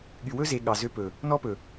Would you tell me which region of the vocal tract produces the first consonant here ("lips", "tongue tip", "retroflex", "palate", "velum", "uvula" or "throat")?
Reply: velum